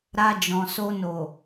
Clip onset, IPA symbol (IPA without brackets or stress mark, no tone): ɾ